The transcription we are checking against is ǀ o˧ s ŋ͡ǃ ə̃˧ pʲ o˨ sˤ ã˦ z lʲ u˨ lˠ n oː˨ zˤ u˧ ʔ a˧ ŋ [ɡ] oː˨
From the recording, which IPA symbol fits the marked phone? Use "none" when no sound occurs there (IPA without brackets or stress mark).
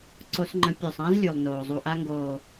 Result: ɡ